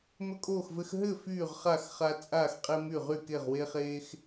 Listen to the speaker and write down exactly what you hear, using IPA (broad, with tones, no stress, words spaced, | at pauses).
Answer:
mɵ˦kʼoː˥˩xvɘ˦x ɦɘ˥˩ fyː˥˩ʁχa˥˩x χa˦ t͡sʼaː˥˩xqʼe˦ my˥˩ʁy˥˩ ke˥˩ʁwe˦χeː˦x